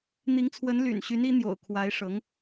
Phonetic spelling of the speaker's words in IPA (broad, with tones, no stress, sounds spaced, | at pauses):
n̪ i˧˥ ŋ t͡sʰ w ə˧˥ n l y̰˨˩ n ɕ y˧˥ n i˧˥ n̪ j o̰˨˩ ʊ̯ kʰ w a˧˥ ɪ̯ ʂ ɤ˧˥ ŋ